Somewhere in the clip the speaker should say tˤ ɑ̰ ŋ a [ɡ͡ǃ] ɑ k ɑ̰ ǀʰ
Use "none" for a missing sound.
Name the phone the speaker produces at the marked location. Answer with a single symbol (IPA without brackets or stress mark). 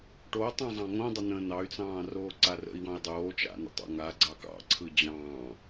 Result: ɡ͡ǀ